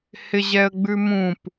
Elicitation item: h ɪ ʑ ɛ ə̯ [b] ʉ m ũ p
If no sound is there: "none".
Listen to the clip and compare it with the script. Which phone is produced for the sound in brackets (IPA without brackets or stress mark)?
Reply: ɡ͡b